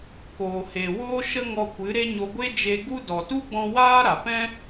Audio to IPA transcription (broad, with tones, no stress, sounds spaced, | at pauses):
k oː˨ h e˨ w oː˦ ʃ ə˦ ŋ ɔ˧ kʷ ɨ˨˦ ɾ e˦ ɲ o˧ ɡʷ e˦ d͡ʒ e˧ ɡ u˦ d ɔ˨ t u˦ ɡ͡b ɔ̃˧ w aː˦ ɾ a˨ p ɛ̃˦